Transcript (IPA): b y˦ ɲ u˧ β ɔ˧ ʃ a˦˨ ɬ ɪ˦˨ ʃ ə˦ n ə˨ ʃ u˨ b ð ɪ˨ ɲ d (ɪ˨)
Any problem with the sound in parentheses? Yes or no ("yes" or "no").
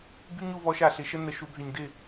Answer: yes